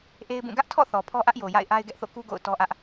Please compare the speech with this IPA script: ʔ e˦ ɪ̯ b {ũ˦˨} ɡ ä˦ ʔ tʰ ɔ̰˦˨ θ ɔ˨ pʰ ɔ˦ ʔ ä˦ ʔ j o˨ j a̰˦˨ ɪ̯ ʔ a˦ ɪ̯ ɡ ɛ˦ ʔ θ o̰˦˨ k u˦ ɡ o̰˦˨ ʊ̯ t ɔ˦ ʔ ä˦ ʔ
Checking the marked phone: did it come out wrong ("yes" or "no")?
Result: no